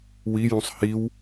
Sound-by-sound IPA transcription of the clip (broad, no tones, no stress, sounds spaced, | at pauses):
w i j ũ sˤ h i w